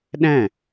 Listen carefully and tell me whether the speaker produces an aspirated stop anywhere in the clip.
no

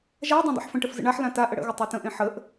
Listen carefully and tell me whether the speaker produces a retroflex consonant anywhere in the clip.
yes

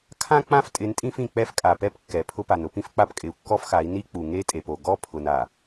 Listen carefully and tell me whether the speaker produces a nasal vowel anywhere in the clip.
yes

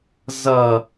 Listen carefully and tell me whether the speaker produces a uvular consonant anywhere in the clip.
no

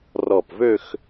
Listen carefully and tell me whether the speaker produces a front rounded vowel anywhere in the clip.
yes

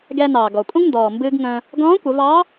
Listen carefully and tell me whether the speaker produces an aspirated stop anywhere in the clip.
no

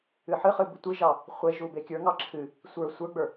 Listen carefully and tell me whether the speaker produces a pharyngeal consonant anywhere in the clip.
yes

